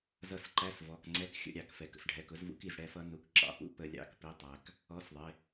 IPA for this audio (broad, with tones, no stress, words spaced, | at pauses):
zʌ˦˨sǃæ˧˥˧svɔ˩˧˩kŋ͡ǀɛ˧˥k xʲə̰˧˥˧ ɾʲɑ˧˩˧kfɛ˩kə̰˩sɖʱɛ˩˧˩k ʊ˧˥zvṵ˧˥k i˩zɽɛ˦˨fʌ˧˥ nu˩˧˩kǁɑ̰˩˧˩pṵ˧˥ pə˧˩˧lʲɑ̰˩˧˩kpi˩˧˩tˤæ˩k | ɔ˧˥˧sðˤɪ˩˧˩